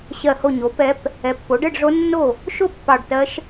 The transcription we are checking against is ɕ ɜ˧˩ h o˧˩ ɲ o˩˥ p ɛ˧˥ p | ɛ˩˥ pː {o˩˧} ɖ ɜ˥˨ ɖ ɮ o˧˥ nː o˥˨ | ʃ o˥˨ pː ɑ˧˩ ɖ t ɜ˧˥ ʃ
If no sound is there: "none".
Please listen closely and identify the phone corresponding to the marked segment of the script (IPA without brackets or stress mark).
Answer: o˩˥